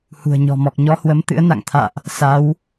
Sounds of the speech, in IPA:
h ṳ˨˩ ə̯ ɲ ɔ̤˨˩ m ɔ˨˩ k̚ ɲ ɔ˧ h w ə˨˦ m t̪ ɨ̰˧˥ ə̯ n a̰˧˨ ŋ t̪ʰ a̰ː˧˨ ʔ | s a˨˦ w

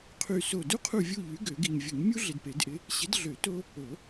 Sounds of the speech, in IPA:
qʰ y˦˨ s o˦˨ d u˥ qʰ u˦˨ vʲ u˦˨ ʎ y˨˥ ɡ ø˨˩˦ ɡ i˨ ɲ vʲ u˨˩˦ ɲ mʲ u˥ ɮ ɪ˨ d p e˨˩˦ d ʔ ɪ˨˥ | ɕ ɪ˨˥ d ɮ ø˨˩˦ t o˥ | o˨˩˦

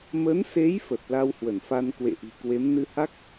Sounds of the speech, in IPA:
m ə˨˦ n s e˨˦ j f ə˨˩ t̚ l a˧ w h w ə˧˩ n f a˧ n k w ḛ˧˨ ʔ i̤˨˩ k w e˨˦ m n ɨ˧ h a˦˥ k̚

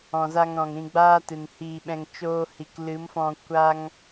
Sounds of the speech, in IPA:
ɔ̃˨ z a˧ ŋ ɾ ɔ̃˨ ŋ ɾ ĩ˧ ɡ͡b aː˧ t ɨ˨ n h iː˧ ɓ ɛ̃˧ ŋ t͡ʃ oː˧ h i˨ k l ɨ˨˦ m f ɔ̃˧ kʷ a˦ ŋ

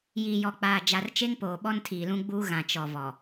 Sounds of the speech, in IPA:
j iː˨ j ɔ˨ k͡p aː˨ d͡ʒ a˨ r t͡ʃ e˦ ŋ p oː˨ ɓ ɔ˦ n tʰ iː˨ l ũ˦ ɡ͡b uː˦ ɣ ã˨ t͡ʃ ɔ˨ v ɔ˨

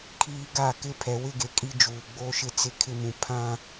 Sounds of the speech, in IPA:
kʰ iː˦ ɡ a˦˨ k ɪ˦˨ pʰ ɛ˨ w ɪ˦˨ ɡ e˨ kʼ i˦ d͡ʒ uː˨ ɡ͡b oː˦ ʃ ɪ˦ t͡s ɪ˦ kʰ ɪ˦ m ũ˨ pʰ ã˦

